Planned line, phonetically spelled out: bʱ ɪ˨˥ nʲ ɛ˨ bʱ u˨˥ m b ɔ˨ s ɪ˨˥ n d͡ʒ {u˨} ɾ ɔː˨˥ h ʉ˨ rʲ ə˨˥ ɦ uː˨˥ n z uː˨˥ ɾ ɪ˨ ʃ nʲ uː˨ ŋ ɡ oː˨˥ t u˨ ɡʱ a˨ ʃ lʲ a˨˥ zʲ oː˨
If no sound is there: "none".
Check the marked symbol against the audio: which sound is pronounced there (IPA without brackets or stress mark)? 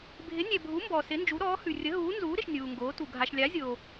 u˨˥